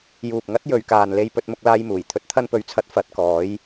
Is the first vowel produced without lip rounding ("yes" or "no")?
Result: no